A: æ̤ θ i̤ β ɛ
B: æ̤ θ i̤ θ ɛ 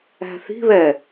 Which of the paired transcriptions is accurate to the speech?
A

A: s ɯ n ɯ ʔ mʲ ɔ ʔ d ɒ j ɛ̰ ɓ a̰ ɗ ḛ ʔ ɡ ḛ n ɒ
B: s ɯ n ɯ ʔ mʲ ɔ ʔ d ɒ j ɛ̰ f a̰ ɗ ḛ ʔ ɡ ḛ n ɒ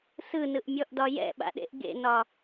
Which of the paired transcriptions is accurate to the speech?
A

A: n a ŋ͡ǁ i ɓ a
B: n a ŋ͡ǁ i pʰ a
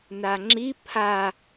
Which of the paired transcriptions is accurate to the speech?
B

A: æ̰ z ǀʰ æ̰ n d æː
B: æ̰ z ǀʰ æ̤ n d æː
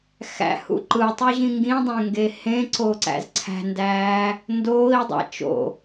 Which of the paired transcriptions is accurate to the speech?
B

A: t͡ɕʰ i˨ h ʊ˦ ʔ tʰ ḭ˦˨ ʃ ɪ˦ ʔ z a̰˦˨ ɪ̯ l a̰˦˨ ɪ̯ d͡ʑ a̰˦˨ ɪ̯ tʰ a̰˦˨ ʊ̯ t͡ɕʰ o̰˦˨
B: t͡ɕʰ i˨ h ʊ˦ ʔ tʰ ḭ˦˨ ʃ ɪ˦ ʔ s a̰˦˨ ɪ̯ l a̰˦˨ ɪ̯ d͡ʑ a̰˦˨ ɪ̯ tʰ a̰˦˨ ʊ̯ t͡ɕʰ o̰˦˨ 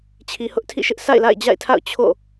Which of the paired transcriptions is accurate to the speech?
B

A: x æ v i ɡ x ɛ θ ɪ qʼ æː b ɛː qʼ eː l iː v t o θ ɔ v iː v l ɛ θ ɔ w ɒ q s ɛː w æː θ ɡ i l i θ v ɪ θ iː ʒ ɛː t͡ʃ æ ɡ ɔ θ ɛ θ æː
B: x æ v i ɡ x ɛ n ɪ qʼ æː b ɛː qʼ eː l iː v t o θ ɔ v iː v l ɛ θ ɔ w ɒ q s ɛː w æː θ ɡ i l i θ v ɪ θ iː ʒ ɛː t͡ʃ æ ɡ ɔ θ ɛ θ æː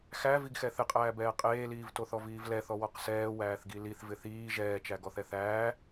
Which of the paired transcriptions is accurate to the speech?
A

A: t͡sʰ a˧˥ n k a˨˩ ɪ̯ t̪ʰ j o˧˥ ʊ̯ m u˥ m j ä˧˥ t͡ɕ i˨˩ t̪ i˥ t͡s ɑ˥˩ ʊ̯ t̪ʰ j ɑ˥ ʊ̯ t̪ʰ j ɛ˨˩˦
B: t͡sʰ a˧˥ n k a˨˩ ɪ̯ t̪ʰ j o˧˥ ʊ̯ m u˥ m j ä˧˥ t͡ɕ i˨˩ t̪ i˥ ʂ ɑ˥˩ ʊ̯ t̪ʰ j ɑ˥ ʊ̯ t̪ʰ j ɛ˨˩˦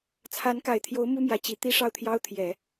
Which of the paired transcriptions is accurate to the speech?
B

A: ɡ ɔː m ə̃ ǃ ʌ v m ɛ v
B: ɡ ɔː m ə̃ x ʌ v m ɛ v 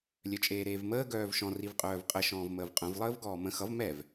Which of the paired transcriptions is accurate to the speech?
B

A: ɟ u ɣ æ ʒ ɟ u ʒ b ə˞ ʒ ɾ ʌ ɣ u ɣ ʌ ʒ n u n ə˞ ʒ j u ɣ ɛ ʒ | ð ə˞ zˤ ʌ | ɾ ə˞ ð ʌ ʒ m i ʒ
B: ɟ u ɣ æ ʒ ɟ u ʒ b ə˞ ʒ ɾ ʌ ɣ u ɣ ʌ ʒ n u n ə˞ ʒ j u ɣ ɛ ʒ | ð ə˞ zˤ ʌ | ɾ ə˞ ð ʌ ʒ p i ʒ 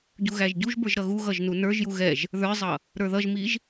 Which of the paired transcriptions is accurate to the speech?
A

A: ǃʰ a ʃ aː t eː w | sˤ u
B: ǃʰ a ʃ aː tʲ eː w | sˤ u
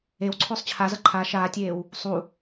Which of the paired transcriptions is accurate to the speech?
B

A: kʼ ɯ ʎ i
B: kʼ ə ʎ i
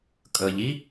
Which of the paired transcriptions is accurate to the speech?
B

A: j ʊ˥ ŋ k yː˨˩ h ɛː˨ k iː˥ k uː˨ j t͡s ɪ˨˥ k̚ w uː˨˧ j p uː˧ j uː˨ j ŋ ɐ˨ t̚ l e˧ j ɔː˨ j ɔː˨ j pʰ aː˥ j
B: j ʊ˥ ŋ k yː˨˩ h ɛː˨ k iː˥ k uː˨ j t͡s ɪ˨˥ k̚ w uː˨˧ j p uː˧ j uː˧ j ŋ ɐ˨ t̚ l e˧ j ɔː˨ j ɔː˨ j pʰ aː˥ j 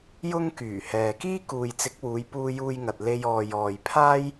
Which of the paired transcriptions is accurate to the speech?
B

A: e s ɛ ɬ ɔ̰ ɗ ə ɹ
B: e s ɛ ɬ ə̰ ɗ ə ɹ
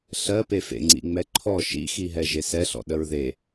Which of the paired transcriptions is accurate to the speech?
A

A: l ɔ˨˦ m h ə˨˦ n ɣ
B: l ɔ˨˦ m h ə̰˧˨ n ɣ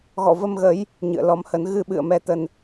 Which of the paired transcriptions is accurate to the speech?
A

